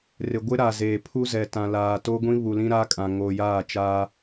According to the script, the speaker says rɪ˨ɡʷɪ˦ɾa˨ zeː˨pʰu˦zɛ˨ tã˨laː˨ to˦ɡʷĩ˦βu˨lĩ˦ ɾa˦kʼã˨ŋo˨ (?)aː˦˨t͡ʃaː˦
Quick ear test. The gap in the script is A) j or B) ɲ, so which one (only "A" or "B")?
A